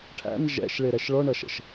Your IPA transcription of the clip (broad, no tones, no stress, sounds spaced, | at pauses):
ʈʰ æ̰ n ʒ ɛ̰ ʃ ɭ ɪ ɾ ɛ ʃ ɭ ɔ ɳ ʌ ʃ ə̰ ʃ